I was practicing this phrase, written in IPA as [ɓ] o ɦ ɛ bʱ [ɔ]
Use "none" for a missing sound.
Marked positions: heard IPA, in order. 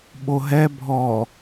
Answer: ɓ, ɔ

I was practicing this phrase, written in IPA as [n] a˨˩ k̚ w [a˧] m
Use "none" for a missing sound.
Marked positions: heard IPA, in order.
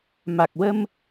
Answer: m, ə˧

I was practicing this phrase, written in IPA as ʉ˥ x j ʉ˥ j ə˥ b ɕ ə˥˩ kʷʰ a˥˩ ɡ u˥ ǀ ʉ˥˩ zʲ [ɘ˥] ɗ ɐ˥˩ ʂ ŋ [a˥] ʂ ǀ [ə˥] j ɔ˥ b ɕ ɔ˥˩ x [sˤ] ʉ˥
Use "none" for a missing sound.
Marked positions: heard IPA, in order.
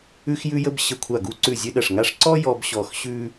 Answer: ɘ˥, a˥, ɔ˥, ɕ

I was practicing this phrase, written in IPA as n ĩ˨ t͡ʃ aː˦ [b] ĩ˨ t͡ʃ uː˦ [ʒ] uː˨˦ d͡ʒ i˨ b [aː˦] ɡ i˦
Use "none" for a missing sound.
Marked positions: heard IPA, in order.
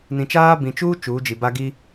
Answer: b, t͡ʃ, a˦

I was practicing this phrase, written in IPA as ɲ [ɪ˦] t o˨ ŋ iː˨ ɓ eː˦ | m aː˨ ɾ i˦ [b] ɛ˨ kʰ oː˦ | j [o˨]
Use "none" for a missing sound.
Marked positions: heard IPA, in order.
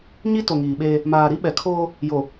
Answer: i˦, ɓ, o˨

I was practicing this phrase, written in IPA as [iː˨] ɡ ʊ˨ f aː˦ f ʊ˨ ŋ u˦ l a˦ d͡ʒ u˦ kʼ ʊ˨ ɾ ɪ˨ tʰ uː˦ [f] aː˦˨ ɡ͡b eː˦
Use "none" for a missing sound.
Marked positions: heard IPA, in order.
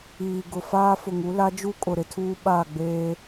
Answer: iː˨, ɓ

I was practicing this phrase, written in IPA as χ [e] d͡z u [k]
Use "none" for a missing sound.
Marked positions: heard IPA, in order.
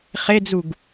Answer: e, ɡ

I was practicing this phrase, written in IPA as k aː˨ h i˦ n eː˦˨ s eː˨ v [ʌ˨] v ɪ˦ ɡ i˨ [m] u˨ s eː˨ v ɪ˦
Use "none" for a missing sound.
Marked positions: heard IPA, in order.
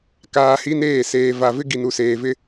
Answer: a˨, n

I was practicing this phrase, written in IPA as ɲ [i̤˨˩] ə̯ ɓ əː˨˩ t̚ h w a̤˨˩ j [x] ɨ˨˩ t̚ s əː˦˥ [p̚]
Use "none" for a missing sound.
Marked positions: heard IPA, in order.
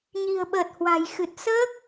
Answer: i̤˨˩, x, k̚

